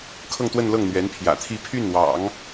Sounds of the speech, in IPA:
kʰɤ˥˧ŋt̪wə˥˧nlɤ˥˩ŋ n̪ɥɛ˧˥npʰjä̰˨˩t̪ʰi˥˧ pʰy˥˩nwɑ̰˨˩˦ŋ

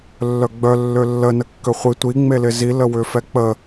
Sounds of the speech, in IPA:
lːœɡ͡bœ lːølːə nəkːøχʷi tʷi ŋ͡melɪzi ləwʏfɛk͡pə

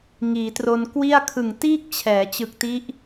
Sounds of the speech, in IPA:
ŋiː˩˦tro˧n kwi˥˩a̯ kʰɯ˨˩ŋtiː˥˩k̚t͡ɕʰɛː˩˦ t͡ɕɯ˨˩k̚ti˦˥ʔ

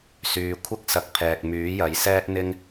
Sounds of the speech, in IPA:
syː˨kʷʰɐ˥k̚ sɐ˨˥k̚pʰɛː˨k̚ myː˨˥jɐ˨˥jsɛː˥t̚ n̪ɪ˥ŋ

